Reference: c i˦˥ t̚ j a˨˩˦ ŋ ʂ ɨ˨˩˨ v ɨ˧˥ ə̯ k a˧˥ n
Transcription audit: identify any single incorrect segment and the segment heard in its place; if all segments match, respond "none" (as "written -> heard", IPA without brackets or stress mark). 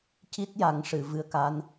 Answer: none